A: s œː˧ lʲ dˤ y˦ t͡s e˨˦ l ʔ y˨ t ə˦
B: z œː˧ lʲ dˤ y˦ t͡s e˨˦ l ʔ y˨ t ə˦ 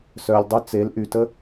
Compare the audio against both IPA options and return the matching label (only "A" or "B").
A